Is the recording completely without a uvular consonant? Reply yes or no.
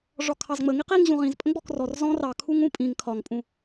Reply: no